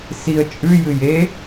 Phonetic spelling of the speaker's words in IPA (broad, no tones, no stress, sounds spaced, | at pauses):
s i ə̯ t͡ʃʼ ʉ j ɨ j e